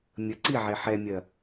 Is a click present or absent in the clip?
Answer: present